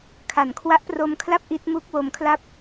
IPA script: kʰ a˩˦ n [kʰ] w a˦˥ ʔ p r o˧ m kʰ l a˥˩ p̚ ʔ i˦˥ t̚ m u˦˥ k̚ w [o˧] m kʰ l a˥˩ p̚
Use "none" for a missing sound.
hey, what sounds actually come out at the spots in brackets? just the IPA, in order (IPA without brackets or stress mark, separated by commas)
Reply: kʰ, o˧